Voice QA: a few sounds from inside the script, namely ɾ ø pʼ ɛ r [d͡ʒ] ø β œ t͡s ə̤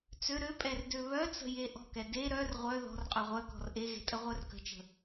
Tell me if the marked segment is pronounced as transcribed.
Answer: no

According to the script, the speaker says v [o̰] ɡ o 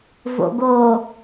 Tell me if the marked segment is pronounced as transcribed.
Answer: yes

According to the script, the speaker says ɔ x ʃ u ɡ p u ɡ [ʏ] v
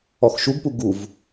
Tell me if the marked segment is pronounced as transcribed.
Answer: no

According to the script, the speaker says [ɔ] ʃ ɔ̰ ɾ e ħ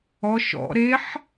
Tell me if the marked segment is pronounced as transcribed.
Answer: yes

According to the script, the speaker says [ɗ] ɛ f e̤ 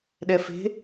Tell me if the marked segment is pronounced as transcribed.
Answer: yes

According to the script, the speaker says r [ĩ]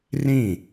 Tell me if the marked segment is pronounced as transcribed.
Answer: yes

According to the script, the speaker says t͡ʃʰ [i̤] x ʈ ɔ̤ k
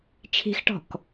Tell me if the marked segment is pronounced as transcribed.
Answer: yes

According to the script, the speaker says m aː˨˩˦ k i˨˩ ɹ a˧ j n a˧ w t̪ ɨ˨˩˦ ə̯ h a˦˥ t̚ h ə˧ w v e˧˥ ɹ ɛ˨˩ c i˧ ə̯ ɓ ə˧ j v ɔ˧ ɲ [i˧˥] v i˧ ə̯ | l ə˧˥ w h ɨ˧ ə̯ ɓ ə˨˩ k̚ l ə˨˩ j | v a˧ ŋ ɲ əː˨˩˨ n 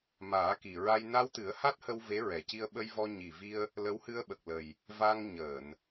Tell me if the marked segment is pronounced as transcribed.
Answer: no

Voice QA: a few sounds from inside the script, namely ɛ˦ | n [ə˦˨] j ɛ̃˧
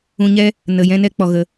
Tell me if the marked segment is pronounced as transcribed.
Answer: no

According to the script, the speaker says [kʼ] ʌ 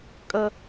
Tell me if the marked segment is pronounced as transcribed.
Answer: yes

